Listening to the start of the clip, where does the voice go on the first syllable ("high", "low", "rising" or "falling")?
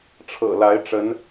low